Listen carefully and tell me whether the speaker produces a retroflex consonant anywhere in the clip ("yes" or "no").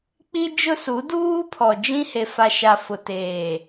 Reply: no